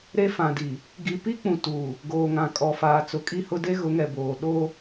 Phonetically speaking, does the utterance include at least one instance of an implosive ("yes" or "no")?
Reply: yes